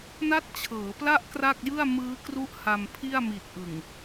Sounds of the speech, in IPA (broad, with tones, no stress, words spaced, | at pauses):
na˦˥t̚t͡ɕʰɤː˩˦pla˦˥ʔ kra˥˩k̚jɯ˥˩a̯ mɯː˦˥kru˦˥ʔ ha˧mpʰi˥˩a̯ mi˨˩t̚ʔɯ˨˩ŋ